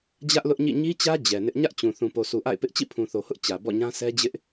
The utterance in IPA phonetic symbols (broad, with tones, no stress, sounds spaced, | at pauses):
d͡ʑ ä˦ ʔ l ʊ˦ ʔ ɲ ḭ˦˨ ɲ i˦ t͡ɕ ä˦ d͡ʑ ɛ˨ n ɪ˦ ʔ ɲ ä˦ ʔ t͡ɕ ũ˨ θ ũ˨ p o˨ s u˨ ʔ a̰˦˨ ɪ̯ p ɪ˦ ʔ t͡ɕ ḭ˦˨ pʰ ũ˨ θ o˨ h ʊ˦ ʔ t͡ɕ ä˨ b ɔ̰˦˨ ɲ ã˦ s ɛ˦ d͡ʑ ɪ˦ ʔ